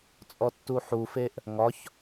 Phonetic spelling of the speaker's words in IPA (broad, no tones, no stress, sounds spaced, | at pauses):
t͡sʼ ɔ tː u ħ u f e ʔ | ŋ ɒ ç